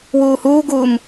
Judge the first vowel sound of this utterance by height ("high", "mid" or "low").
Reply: high